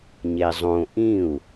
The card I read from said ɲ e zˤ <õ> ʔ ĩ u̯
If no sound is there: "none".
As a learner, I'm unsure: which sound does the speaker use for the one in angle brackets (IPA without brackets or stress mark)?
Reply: õ